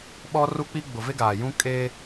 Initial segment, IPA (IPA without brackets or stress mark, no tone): ɓ